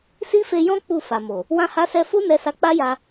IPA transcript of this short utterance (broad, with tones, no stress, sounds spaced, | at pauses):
s i˦ f e˧ j ɔ̃˦ k͡p u˦˨ f a˨ m o˨ | w ã˧ h a˧ s ɛ˧ f u˦ n ɛ˧ s a˧ k͡p a˦ j a˧